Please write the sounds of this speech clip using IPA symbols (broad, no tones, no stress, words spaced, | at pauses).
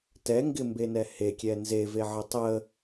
tɛŋɡɪmbenɛ hekʲɛ nzeveʕə tˤə